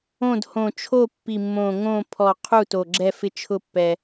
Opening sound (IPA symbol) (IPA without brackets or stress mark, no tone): õ